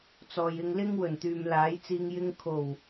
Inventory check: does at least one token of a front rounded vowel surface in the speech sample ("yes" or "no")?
yes